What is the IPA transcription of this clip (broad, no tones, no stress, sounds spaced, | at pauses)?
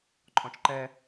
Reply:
ǃʼ ɔ̃ t͡ʃ ǃ ɛ